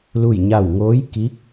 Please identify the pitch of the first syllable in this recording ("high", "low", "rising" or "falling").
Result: falling